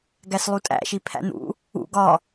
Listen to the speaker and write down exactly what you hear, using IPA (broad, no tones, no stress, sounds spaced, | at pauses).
ɡ æ s lˠ u tʼ æ̰ ʃ i pʰ æ̰ n̪ ṵ | ṵ ɡ ɒ